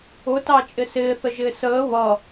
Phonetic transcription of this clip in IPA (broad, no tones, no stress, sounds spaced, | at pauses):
ʊ t ɑ t͡ʃʼ ɪ s ɪː θ ə ʒ ɪː s əː β ʌ